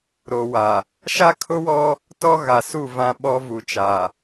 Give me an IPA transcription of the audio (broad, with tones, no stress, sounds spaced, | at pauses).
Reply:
ɾ o˨ w a˨ | ʃ a˦ kʰ ʊ˦ w ɔ˦ | t ɔ˦ ɣ a˨ s u˦˨ v ã˦ ɓ ɔ˦ v u˨ t͡ʃ a˨